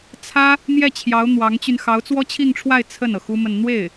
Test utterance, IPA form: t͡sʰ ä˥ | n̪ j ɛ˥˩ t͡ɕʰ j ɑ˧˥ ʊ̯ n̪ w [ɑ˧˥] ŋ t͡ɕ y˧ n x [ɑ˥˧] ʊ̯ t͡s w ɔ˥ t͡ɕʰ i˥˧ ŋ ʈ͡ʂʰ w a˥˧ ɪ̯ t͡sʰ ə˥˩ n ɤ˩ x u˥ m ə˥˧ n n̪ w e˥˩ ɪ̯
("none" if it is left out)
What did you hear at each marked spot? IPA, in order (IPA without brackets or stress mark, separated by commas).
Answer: ɑ˧˥, ɑ˧˥